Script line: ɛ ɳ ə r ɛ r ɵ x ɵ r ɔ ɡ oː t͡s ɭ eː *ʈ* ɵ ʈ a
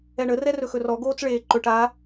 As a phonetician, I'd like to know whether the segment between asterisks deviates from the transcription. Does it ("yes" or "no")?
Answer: yes